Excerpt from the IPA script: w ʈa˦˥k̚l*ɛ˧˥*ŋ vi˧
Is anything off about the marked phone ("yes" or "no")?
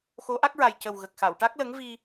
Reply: yes